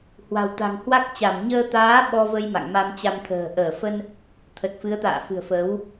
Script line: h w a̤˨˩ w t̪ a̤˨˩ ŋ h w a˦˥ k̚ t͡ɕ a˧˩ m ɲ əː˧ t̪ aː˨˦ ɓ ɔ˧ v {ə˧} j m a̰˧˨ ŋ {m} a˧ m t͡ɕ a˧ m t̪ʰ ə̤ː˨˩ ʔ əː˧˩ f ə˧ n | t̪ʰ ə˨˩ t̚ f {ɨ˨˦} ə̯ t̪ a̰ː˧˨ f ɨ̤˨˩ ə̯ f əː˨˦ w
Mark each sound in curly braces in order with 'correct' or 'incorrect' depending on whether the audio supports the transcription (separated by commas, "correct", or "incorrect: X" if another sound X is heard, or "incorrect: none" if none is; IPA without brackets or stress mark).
correct, correct, correct